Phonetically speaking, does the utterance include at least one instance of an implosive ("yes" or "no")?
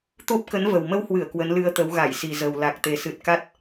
no